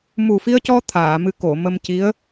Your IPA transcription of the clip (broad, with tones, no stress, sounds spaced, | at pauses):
m u˨˩ f i˧ ə̯ c ɔ˧ t̪ʰ aː˨˩˨ m ɨ˧˥ k o˨˩˨ m ə˧ m c i˧˥ ə̯